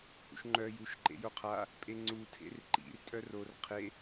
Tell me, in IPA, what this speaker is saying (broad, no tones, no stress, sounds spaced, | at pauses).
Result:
h ṵ ʃ ŋ͡ǃ œ j u ʃ ǃ ḛ j o qʰ a | pʼ e ŋ͡ǀ u tʰ ḛ r ǃ ḭ r tʼ œ r o r qʰ e